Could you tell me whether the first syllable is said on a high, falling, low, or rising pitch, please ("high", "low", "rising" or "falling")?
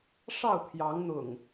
falling